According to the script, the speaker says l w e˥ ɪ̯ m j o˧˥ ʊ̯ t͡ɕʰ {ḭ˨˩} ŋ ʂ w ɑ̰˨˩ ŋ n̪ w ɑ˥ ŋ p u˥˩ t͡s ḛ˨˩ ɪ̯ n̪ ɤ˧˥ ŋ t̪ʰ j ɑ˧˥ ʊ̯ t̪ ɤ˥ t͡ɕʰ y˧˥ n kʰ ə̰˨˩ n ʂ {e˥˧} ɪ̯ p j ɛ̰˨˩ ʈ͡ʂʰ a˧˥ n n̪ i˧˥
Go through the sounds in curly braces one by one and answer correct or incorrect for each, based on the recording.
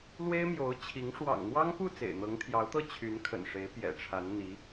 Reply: incorrect: i˧˥, incorrect: e˧˥

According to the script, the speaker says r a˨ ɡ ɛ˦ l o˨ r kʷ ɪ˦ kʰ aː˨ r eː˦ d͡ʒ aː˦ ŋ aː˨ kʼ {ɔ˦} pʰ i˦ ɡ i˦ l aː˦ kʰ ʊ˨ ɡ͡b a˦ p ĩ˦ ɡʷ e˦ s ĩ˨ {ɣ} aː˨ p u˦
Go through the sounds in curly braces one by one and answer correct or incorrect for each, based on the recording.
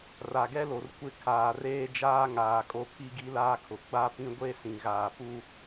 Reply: incorrect: o˦, correct

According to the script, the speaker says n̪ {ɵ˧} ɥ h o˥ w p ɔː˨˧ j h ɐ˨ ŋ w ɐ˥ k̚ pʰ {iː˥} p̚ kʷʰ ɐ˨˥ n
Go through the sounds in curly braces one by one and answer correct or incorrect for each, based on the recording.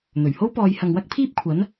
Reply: incorrect: ɵ˨˩, correct

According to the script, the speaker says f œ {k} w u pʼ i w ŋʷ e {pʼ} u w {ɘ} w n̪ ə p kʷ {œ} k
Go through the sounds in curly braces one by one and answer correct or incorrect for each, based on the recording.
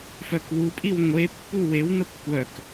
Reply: correct, incorrect: pː, incorrect: e, correct

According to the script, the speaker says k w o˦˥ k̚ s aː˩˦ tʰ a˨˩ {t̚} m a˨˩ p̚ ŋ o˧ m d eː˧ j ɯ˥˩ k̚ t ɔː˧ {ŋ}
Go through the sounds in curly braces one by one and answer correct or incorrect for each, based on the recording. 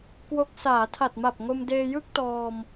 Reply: correct, incorrect: m

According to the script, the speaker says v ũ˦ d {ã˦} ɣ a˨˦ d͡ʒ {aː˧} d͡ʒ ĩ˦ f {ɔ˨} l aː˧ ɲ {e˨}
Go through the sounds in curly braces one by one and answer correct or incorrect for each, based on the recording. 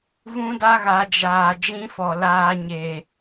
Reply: incorrect: a˦, incorrect: aː˨, correct, correct

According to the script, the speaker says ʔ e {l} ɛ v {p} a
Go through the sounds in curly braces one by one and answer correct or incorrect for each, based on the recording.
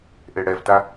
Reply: incorrect: ɽ, incorrect: t

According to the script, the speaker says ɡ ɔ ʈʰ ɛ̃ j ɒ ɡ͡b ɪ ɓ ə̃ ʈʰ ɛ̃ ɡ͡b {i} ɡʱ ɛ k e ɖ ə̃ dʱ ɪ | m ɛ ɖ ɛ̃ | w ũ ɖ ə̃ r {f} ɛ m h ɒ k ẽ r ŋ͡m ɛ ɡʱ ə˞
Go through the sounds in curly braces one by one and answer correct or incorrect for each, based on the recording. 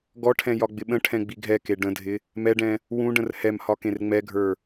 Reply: correct, incorrect: h

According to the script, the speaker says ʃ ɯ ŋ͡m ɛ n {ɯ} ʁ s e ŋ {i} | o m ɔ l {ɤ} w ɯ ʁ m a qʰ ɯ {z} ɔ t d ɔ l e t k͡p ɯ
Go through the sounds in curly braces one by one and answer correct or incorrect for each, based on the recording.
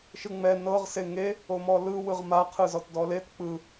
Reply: incorrect: ɤ, incorrect: e, incorrect: ɯ, correct

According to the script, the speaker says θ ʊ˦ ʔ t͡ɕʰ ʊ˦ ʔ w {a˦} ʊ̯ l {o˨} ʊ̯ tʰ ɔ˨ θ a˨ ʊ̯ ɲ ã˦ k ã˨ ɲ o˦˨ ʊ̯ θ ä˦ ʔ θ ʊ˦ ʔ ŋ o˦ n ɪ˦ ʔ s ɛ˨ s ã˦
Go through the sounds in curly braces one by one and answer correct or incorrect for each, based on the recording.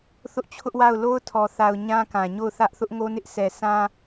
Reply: incorrect: a˦˨, incorrect: o˦

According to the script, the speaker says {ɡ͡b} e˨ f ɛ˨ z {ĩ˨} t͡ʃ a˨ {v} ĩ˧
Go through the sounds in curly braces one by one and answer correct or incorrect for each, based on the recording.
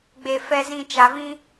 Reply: correct, correct, correct

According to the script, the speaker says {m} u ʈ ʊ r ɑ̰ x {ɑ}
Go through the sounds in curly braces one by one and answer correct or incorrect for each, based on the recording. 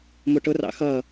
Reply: correct, incorrect: ʌ

